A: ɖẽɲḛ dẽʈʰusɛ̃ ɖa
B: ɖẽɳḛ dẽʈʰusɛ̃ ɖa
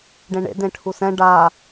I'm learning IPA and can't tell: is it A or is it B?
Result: B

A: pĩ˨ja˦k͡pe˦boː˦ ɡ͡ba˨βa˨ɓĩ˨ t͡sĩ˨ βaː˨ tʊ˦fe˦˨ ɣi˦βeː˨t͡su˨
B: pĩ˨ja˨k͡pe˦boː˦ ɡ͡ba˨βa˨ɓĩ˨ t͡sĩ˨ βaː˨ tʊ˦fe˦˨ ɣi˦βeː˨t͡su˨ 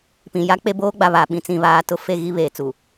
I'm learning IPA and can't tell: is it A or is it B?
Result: A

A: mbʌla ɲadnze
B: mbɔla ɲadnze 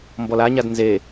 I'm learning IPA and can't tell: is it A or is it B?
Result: B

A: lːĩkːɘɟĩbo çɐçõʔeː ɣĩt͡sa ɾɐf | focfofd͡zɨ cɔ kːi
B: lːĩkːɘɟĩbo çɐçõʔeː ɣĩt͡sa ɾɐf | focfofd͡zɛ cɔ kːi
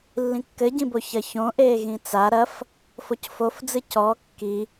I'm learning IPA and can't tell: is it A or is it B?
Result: A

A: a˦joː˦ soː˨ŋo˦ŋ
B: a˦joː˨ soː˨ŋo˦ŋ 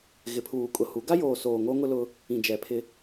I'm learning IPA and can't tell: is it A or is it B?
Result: B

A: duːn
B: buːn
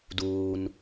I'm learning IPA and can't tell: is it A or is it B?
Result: A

